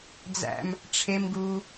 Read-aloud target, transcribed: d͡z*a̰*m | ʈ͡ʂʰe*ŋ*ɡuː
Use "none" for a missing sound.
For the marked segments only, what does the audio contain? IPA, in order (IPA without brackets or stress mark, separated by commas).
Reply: æ̰, m